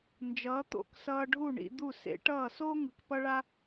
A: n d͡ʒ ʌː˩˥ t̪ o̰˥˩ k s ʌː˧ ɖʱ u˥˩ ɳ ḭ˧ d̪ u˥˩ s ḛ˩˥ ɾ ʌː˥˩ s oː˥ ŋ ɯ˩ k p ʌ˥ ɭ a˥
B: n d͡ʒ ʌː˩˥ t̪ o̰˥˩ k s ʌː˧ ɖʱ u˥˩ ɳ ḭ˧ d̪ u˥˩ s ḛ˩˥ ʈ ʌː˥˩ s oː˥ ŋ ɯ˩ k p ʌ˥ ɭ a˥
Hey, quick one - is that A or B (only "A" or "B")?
B